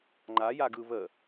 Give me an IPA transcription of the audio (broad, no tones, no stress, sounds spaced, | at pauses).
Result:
ŋ͡ǃ a j a ɡ ɯ β ə